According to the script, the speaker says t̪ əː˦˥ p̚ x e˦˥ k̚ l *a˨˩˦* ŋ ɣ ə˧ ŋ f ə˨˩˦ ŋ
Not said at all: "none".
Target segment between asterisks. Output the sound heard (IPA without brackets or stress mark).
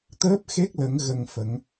ə˨˩˦